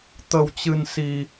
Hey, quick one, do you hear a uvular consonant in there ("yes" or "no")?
no